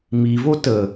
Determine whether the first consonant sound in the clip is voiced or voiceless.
voiced